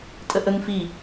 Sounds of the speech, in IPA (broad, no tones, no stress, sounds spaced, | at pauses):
tʼ ə ʔ ə ŋ f i